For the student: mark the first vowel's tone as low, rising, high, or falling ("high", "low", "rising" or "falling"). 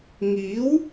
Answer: rising